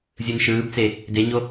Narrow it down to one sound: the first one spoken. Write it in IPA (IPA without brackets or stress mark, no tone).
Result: zʲ